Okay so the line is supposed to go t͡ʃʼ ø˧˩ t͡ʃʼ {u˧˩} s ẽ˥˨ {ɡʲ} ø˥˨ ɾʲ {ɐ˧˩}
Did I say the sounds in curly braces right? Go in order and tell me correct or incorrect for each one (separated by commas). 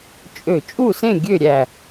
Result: incorrect, correct, incorrect